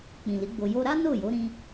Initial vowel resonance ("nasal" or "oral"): nasal